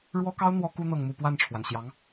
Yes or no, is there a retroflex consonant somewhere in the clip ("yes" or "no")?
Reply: yes